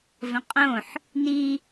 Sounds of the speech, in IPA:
v ə̃ qʼ õ ħ | n i

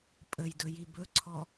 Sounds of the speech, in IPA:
pʼ ə j d ɵ j i b ɵ ǀʰ ɔ

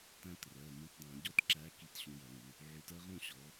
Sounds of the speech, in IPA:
t æ̃˦ t r ɜ˩˧˩ m ũ˨˦ t dˤ æ̃˧˩˧ ɟ ɔ˦ t ǁ æ˨˦ k i˧˩˧ t ɕ ũ˨˦ j ʌ˧˩˧ ŋ u˩˧˩ | ʕ u˨˦ t ɜ˦ ʁ ũ˥˨ ɕ ɔ˨˦

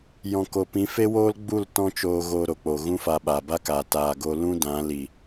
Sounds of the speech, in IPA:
j ɔ̃˨ k o˨ p ĩ˨˦ f e˦ w oː˦ l ɡ͡b u˦˨ l t ɔ̃˦ t͡ʃ oː˧ ɣ o˧ ɾ o˨ k͡p o˨ ɣ ũ˦ f a˧ ɓ a˨ b a˦ k a˨ t aː˧ ɡ o˦ l ũ˦ d ã˨˦ l i˨

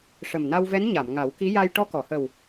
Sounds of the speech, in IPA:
ʂ ə˨˩ m n a˧ w v ɛ˧˥ n ɲ a˨˩˨ m ŋ a˨˩˦ w k i˧˥ j a˧ j ʈ ɔ˧ k ɔ˨˩˨ h ə˨˩ w

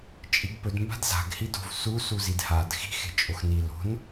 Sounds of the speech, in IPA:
t͡ʃʼ i ɡ p ɵ d m b a̤ d z a̤ ɡ h i d o̤ v s u s u z i d h a d x i̤ x e̤ t͡ʃʼ o x n i l o̤ n

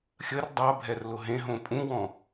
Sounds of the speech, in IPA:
xʲ ə r dˤ a bʱ ɛ r l ʊ ɦ ẽ ɦ õ pʼ ũ w ɔ̃

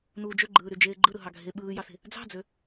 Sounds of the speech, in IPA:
n uː d͡ʒ ø ɡ͡ǃ ɯː ɾ y d͡ʒ eː ɡ͡ǃ ɯ ɾ ɯ ɦ ɑ ɡʱ e ɓ ɯː j ɑ s e̤ | d͡z ɑ̤ d͡z ø

